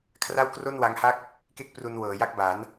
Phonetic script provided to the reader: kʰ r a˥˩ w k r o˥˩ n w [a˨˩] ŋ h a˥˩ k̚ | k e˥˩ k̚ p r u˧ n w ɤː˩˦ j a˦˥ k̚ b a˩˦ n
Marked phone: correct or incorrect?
incorrect: a˦˥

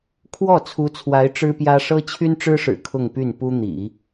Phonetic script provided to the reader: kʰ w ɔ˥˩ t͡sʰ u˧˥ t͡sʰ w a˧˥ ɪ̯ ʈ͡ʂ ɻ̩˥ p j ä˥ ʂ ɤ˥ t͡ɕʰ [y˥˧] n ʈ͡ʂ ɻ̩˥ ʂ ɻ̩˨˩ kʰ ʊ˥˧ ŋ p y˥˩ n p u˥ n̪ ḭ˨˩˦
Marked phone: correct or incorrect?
incorrect: y˥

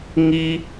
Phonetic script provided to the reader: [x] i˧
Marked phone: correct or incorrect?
incorrect: ŋ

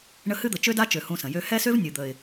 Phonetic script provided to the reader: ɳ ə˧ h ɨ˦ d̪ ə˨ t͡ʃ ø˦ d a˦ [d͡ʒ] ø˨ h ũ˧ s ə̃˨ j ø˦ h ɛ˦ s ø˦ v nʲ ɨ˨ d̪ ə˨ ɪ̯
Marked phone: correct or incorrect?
incorrect: t͡ʃ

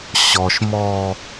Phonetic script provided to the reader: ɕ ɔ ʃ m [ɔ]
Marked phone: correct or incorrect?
correct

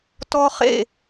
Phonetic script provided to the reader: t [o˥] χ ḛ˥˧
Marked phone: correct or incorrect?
incorrect: ɔ˥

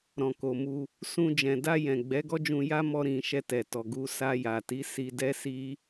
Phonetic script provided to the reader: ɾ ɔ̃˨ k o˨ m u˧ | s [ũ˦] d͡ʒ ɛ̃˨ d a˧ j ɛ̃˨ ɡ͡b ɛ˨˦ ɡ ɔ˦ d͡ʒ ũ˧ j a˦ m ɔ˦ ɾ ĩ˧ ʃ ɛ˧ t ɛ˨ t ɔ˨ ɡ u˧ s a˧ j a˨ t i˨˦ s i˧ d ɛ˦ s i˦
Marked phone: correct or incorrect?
incorrect: ũ˧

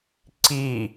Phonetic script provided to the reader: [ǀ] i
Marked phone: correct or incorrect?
correct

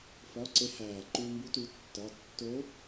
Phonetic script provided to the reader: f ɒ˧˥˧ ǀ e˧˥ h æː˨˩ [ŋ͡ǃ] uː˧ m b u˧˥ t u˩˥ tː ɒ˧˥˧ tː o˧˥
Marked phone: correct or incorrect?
incorrect: ǃ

